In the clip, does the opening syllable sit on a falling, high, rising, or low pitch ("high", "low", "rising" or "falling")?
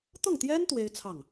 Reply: falling